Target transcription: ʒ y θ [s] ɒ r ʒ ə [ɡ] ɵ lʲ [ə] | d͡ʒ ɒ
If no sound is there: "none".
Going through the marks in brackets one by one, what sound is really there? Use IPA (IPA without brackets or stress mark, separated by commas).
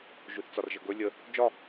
t͡s, ɡ, ə